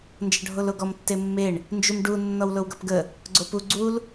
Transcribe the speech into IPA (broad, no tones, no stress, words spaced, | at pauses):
nd͡ʒʌɖʱoloɡɔm tːemːeɳ | nd͡ʒumɖu nːɔwlowɡʌpɡə | ɡ͡ǀopu ɡ͡ǀul